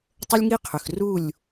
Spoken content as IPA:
tˤə˦lʲŋi˦qʰʏ˨x ru˦˨lʲ

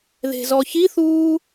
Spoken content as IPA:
ðe̤zɔçiθuː

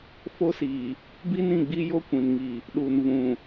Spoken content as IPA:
fo˦siː˨ | bi˦nĩ˦˨ɡ͡bi˦jo˦ kʷĩ˨nŋiː˨ | ɗu˨nvũ˨

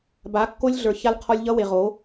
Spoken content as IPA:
ba˨˦kːo˦lʲ ɮə˞˨ ça˦lqʰɔ˦lʲ ʎʌ˦we˨ʁo˨˦

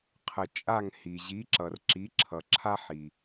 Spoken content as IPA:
qʰə˩ t͡ʃʼa˦˨ŋhi˩ ʑi˨˥ǁʌ˩rǁi˨˥ǁʰʌ˩ ǁʰa˥ħ i˩

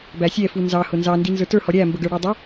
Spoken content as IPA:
bæsʲɛ funzɑ hʊnzɑ ndinzə˞tə˞ hɔɾʲæ mbəɡə˞ɽə˞dˤʊ

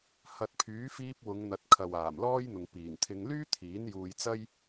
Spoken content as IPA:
hɐ˨t̚pʰyː˨˥fiː˧p̚ wʊ˨˧ŋn̪ɐ˨˥t̚kʰɐ˨w aː˨˩mlɔː˥jn̪ʊ˨ŋ piː˨˩ŋt̪ʰɪ˧ŋ lyː˥t̪ʰiː˨˥n juː˧jt͡sɐ˥j

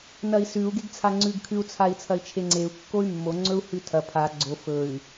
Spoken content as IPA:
nɐi̯sʉu̯ ɡeɡt͡sʰaŋ͡ǀʉɡkʰʉu̯ t͡sʰai̯t͡sʰɐi̯t͡ʃʰeŋ͡ǀeu̯ kːoy̯mːo ŋ͡ǀɵu̯hʉtʰɐ pʰa ɡ͡ǀo fɵy̯

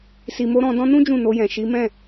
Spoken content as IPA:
si˨mo˧ ɾɔ̃˧ dɔ̃˧nũ˦ d͡ʒũ˦˨no˧jɛ̃˨ ʃi˨˦mɛ̃˦˨

